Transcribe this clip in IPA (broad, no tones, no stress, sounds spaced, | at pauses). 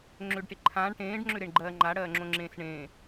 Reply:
ŋ͡ǁ ʏː ɖ ʈ e ǃʰ ãː ɳ ʈ ẽː ɖ ŋ͡ǁ ʏ ɾ e ɳ ɡ͡ǃ ɜː ŋ͡ǃ a ɽ ɜː ŋ͡ǁ õ ŋ͡ǁ ẽː s ɳ ẽː